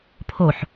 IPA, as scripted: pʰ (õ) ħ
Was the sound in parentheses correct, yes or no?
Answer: no